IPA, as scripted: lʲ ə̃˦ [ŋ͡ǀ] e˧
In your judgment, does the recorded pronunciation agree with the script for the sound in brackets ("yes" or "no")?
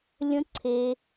no